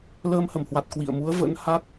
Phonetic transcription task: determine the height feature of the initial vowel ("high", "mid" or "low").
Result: mid